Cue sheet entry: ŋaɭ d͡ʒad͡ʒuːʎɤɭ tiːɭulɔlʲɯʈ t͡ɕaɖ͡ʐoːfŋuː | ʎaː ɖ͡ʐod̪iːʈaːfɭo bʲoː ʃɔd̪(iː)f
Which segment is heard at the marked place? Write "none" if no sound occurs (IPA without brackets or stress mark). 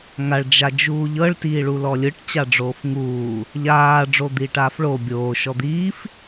iː